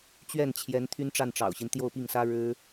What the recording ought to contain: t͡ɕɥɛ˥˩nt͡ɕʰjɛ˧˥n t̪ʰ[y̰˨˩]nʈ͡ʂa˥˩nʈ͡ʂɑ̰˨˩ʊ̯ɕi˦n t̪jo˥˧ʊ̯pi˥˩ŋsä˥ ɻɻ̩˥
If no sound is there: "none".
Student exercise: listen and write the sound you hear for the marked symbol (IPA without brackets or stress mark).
y˥